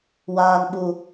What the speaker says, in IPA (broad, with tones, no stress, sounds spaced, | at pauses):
w aː˦ n ɓ u˦